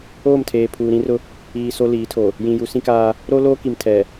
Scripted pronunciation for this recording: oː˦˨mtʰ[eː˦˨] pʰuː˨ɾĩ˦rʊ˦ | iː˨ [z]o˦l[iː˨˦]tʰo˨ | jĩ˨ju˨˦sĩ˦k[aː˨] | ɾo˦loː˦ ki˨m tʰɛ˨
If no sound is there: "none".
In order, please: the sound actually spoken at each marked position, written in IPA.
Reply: eː˨, s, iː˨˦, aː˦

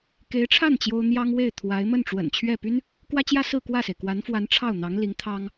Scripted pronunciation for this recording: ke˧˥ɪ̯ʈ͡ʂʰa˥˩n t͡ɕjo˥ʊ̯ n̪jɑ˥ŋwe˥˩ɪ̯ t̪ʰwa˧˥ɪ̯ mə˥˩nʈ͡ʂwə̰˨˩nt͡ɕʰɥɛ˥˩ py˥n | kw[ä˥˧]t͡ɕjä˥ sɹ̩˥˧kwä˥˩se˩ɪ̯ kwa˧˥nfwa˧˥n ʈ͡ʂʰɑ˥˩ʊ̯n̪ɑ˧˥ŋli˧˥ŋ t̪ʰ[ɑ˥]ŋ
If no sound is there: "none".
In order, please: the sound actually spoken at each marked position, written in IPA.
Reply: ä˥, ɑ˥

